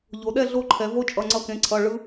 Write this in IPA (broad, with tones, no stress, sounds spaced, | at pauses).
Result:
ʎ o˩˧ ɗ ɛ˥˧ ɮ o˦˥ ǃʰ ɛ˩˧ v o˦˥ t͡ʃʼ ʌ˩˧˩ ŋ͡ǀ ʌ˧˩ k ẽ˩˧ ǀʰ ʌ˩˧˩ ɭ ɯ˦˥